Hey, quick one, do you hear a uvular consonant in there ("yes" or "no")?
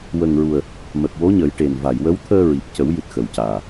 no